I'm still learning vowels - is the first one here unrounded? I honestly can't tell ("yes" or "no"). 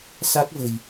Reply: yes